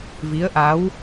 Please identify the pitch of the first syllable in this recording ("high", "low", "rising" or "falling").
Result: rising